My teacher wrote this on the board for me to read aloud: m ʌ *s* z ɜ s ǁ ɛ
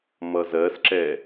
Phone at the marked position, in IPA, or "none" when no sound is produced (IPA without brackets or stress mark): none